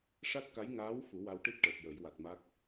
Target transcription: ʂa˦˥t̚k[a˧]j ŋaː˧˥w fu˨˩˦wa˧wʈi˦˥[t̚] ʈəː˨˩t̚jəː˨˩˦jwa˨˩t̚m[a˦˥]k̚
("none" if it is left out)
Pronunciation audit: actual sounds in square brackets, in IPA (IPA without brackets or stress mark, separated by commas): a˧˥, t̚, a˦˥